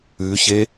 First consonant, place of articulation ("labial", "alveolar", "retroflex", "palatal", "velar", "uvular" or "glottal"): palatal